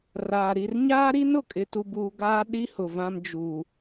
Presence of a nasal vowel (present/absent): present